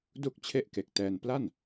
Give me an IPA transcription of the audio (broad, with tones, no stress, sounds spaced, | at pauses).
d u˥˩ k̚ t͡ɕʰ e˥˩ ʔ k e˨˩ k̚ t ɛː˧ n p l a˥˩ n